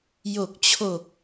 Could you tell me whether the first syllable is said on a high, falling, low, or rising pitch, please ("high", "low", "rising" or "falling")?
low